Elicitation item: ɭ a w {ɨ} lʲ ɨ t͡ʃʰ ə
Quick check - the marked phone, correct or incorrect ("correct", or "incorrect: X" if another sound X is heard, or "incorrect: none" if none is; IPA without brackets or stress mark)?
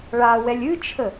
incorrect: ɛ